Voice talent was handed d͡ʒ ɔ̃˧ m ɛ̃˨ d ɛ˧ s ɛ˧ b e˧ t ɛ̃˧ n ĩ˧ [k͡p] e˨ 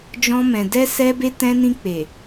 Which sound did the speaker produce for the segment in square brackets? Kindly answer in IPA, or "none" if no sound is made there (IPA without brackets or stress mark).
k͡p